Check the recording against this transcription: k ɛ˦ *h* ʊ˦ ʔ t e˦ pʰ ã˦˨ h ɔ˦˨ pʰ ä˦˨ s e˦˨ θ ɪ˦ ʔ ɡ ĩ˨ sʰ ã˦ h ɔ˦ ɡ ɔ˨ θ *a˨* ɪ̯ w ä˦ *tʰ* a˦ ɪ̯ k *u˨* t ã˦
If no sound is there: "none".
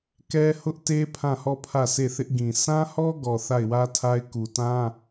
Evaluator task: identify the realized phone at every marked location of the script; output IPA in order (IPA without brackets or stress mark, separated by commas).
h, a˦˨, tʰ, u˨